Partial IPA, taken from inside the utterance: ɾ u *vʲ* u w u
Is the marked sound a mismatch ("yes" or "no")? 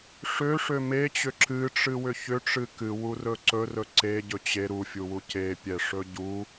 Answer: yes